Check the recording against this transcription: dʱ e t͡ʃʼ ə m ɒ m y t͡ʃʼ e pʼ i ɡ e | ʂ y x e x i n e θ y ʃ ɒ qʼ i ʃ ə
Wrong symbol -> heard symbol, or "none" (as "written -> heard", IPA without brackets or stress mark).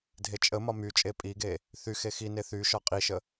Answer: ʂ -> θ